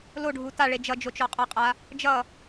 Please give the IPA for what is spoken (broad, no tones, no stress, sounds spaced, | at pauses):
l o ɖʱ u t a ɭ e d͡ʒ ʌ d͡ʒ o t͡ʃ ɔ qʼ ʌ qʼ a | d͡ʒ ʌ